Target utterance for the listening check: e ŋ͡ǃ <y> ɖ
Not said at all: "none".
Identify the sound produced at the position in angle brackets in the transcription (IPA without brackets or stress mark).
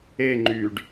y